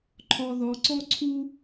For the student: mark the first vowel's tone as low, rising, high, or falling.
low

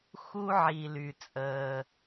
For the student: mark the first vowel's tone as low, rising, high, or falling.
low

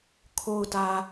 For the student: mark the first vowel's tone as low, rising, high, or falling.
low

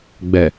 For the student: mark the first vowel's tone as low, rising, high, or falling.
low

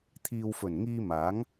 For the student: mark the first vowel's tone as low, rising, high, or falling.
low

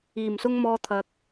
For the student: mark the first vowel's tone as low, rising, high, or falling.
low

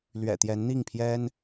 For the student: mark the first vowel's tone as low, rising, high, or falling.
low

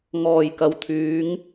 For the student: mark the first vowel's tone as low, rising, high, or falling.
low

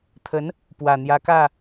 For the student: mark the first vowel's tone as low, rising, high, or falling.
rising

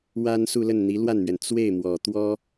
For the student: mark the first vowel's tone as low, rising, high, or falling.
high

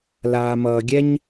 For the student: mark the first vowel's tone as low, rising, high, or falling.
low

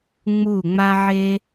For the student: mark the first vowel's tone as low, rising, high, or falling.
falling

